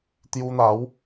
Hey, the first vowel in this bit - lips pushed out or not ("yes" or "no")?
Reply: yes